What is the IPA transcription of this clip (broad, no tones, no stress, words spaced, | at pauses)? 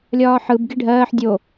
lʲɒːħɯb ɡiɖʱɜːħ dʲo